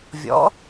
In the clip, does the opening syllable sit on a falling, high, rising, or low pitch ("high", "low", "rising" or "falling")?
rising